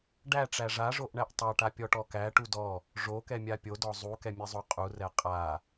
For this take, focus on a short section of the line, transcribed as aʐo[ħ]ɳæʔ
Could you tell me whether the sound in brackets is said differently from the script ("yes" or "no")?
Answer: yes